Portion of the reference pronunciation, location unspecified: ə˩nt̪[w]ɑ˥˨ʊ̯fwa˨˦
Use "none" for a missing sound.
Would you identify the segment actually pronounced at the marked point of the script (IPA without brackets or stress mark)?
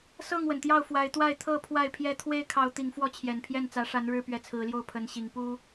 j